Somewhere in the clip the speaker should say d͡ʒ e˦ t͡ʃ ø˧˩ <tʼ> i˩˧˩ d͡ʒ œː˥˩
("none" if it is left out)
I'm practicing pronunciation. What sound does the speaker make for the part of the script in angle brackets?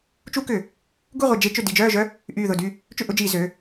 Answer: d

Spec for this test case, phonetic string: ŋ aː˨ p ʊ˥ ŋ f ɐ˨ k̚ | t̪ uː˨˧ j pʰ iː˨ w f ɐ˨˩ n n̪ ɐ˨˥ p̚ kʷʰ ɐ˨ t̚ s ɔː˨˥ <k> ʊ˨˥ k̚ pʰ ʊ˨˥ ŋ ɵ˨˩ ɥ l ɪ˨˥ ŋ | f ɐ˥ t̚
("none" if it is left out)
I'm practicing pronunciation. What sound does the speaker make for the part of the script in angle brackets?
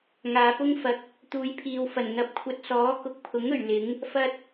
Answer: k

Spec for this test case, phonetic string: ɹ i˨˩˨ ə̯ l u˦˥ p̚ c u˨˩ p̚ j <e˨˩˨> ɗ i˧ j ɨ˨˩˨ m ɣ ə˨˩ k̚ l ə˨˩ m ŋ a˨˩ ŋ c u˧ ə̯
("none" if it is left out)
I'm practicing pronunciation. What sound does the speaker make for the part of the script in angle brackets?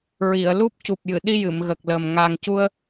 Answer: ɨ˨˩˨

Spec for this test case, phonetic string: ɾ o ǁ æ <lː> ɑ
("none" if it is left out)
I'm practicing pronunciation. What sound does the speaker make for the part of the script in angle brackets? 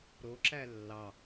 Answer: lː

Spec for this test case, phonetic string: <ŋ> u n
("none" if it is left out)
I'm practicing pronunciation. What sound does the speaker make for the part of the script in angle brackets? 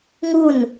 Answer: ŋ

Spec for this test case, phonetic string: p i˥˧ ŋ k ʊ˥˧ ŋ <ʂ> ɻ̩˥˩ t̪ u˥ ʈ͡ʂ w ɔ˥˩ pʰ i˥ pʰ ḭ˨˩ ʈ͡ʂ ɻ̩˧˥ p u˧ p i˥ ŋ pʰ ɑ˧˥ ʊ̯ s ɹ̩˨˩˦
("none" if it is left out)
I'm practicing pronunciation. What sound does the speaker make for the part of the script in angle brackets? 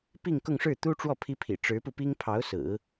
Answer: ʂ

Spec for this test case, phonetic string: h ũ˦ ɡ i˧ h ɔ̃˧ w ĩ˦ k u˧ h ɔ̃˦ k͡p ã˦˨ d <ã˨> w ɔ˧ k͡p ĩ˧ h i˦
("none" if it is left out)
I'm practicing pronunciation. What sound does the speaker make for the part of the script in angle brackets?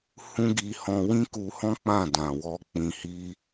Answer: ã˨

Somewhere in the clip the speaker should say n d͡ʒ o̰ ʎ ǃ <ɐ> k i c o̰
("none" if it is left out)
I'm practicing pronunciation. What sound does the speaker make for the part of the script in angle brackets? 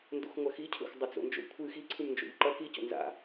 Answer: ɐ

